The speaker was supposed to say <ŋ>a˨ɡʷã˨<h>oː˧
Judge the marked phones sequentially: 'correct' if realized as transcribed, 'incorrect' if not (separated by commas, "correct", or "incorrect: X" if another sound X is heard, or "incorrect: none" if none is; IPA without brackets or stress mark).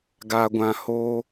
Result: incorrect: ɡ, correct